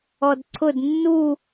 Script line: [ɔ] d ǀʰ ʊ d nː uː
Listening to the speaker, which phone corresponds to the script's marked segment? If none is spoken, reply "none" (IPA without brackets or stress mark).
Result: ɔ